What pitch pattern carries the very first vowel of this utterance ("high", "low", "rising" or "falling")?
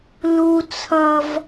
low